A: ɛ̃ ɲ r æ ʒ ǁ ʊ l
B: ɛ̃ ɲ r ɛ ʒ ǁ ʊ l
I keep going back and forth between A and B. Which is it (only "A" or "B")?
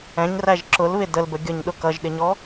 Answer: A